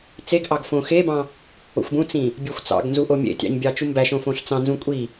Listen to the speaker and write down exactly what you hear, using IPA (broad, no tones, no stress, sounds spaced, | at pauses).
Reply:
t͡s e ɡ ʔ ɑ ɡ f õ x e b ɑ̃ | o̰ xʷ b ũ t͡s ĩ | bʲ e xʷ t͡s ɑ̰ ɡ n z u ʔ o mʲ ḛ tʲ ɑ̰ ɲ bʲ ɑ t͡ʃ u m b æ ʃ õ f õ ɬ t͡s ɑ̃ n z ũ kʷʼ i